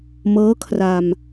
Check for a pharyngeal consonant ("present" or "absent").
absent